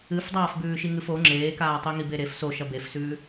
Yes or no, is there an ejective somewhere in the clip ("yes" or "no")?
no